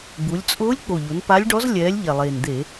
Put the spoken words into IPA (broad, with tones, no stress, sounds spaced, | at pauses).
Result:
ɡ͡b u˩˧ lʲ t͡sʼ ʊː˧˥ lʲ k͡p o˨˩ ʎ o˩˧ n p a˧˥ lʲ ɖ ɔ˧˥ z lʲ ɛː˩˧ lʲ ʎ ɛ˨˩ lˠ eː˨˩ n d̪ e˧˩˧